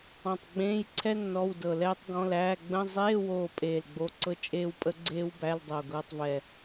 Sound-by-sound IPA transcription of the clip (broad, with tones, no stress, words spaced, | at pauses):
ɔ̃˧˩tˤ ɡ͡bẽː˧˥˧jǀʰɛ˥ nːɔ˧˥˧wdɤ˧˩lɛː˥tˤɡɔ̃˧˥˧l æː˧˥˧ ɡ͡bə̃˧˥˧ zˤeː˧˥˧woː˧˩ pʼeː˧˩lɡ͡bo˧˥˧ǀɤ˥ t͡ʃʼeː˥wpʼə˥ɡ͡ǀeː˥wbæ˧˥˧l dˤo˧˩ɡɤː˧˥˧tˤvɛ˧˩